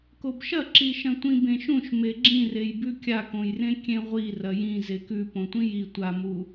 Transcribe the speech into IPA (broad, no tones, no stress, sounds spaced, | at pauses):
k o b ʃ ɐ ǁ i ʃ ɐ̃ tʷ ĩ b ẽ ʃ ũ ʃ m e ɡ͡ǁ ĩ r e j b ʉ kʲ a k õ j r ẽ kʲ ẽ ʁʷ i r ɐ j ĩ z e k ʉ p õ tʷ ĩ j i tʷ a m u